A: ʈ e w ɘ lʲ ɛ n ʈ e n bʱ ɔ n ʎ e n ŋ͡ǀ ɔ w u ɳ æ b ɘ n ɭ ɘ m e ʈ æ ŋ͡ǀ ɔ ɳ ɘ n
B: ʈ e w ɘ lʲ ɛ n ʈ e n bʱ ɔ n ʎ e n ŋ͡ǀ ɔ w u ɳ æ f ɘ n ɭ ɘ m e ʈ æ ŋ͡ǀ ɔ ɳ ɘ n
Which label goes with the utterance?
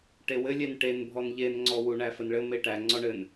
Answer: B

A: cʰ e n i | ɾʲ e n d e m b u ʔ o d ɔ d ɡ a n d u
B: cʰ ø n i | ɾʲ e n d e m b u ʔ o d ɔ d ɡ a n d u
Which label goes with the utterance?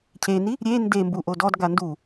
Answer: A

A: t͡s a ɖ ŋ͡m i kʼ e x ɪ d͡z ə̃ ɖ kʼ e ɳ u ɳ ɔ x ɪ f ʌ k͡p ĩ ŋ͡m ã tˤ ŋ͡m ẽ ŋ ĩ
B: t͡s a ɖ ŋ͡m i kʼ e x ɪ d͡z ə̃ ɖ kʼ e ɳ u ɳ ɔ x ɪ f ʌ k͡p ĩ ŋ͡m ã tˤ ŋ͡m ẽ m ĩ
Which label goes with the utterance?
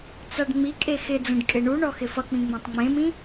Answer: B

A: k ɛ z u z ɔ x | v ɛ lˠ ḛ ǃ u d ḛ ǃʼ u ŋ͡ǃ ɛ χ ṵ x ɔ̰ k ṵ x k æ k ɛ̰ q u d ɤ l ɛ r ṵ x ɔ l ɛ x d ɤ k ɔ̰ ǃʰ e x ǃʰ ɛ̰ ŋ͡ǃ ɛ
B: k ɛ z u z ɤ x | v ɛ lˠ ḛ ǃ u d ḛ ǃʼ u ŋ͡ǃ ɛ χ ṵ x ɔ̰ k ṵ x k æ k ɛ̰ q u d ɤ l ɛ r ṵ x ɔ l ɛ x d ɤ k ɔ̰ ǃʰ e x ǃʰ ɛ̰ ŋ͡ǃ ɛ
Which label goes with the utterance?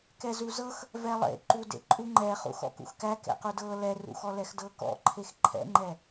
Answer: B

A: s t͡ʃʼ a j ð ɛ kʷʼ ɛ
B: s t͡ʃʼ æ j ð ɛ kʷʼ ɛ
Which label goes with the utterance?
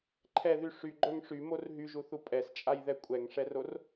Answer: A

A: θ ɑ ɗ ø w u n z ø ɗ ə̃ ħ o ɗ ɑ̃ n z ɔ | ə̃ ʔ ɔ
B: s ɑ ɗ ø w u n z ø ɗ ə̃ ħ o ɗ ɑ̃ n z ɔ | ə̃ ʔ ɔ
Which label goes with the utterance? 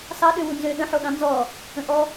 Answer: B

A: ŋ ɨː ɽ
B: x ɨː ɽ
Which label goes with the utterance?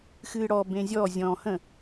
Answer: B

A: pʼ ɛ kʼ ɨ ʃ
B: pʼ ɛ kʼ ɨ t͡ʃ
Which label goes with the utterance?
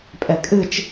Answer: B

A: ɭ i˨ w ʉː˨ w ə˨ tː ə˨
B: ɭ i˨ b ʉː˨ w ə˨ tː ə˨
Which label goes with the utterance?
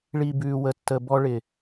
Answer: B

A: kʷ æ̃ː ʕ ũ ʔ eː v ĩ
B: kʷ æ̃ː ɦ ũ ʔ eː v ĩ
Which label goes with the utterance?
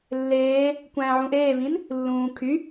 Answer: A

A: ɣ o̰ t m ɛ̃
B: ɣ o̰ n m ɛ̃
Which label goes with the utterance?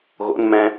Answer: B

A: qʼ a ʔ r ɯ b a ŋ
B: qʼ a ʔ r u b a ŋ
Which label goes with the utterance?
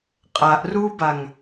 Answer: B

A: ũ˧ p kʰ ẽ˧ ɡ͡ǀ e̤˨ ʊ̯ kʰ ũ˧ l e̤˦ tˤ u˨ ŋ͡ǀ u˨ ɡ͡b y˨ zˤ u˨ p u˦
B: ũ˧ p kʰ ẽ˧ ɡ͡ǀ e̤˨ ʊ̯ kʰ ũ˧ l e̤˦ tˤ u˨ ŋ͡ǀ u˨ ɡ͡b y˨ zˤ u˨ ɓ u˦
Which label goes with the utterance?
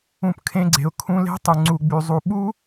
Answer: B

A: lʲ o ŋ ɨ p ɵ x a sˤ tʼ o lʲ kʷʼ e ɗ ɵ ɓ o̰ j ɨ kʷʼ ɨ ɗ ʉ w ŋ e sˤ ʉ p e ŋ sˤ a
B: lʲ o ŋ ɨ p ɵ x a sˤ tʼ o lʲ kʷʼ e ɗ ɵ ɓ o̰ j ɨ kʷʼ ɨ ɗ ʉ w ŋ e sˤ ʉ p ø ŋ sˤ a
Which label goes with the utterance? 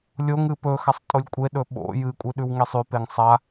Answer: A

